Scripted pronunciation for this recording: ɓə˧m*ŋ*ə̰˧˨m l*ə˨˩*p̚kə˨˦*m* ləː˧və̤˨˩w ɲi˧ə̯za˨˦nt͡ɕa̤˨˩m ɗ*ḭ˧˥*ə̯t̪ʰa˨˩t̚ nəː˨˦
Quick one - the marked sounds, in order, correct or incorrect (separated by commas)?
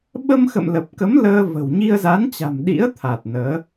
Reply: incorrect, correct, correct, correct